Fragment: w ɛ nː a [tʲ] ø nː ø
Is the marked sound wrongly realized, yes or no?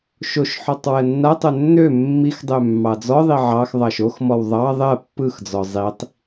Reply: yes